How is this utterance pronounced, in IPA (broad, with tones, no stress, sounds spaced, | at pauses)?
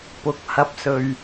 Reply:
p ʊ˨ k̚ h ɐ˧ p̚ s ɵ˧ ɥ